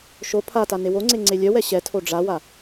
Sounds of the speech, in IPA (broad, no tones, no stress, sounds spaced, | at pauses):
ʃ o pʰ a t a n e w o ŋ͡ǀ e ŋ͡ǀ e lʲ œ w ɛ ɕ ɛ tʰ o ɖ͡ʐ a w a